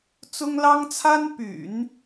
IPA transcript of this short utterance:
t͡sʊ˥ŋlɑ˥ŋt͡sʰa˥n py̰˨˩˦n

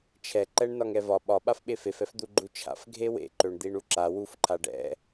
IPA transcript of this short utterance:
t͡ʃʰɛǃɛɳ nɒŋɛvɒ ɓɒ ɓafɓefefɛf d̪uɡ͡ǃut͡ʃʰa̰f ɡʱewḛǃøɳ d̪iɳuǁa wuf ǃʰaɖɛ̰

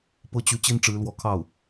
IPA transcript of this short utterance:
pɤ˥ t͡ɕy˧˥ t͡ɕi˥nʈ͡ʂɻ̩˧˥lwɔ˧˥kʰɑ˥˩ʊ̯

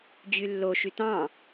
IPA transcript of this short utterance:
d͡ʑylːo ʃytɑ̃

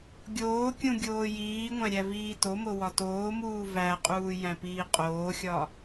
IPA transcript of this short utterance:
ɡʲoːkʲũ ɡʲoːjiːŋʷæ̃ ɾʲæviːtomo wɒtoːmuː væqʼuː jæ̃piːqʼoːxʲɒ

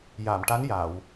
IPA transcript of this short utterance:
ja˨˩˨mʈa˧˥n ja˨˩˨w

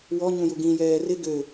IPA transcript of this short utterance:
wɔɲũju ɡĩjɛː rɪ ɡø

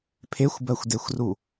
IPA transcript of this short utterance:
pʰexʷbɜxʷdexʷru

